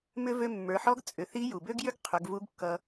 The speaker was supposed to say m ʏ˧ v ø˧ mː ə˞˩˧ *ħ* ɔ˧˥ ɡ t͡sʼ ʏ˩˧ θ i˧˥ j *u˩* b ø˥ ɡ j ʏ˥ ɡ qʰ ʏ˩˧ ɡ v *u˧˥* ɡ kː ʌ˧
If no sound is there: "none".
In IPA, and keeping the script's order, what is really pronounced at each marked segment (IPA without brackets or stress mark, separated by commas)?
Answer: ħ, u˩, u˧˥